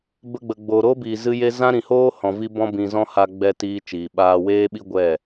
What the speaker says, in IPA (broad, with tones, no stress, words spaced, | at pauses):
bə˧ɡ͡bə˨ ɡ͡boː˨ɾoː˦biː˨ zɨ˦je˦ zã˦ɾĩ˨hoː˦ hɔ̃˨vi˦ bɔ̃˦bĩ˧zɔ̃˦ ha˦ɡ͡bɛ˦ tiː˧t͡ʃiː˨ ɓaː˧weː˦ɓi˦ ɡʷɛ˦˨